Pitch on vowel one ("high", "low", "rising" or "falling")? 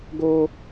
high